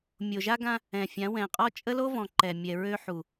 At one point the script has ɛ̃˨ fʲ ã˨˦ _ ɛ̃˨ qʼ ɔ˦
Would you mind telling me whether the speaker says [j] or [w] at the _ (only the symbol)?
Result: w